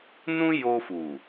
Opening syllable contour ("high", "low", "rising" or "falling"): high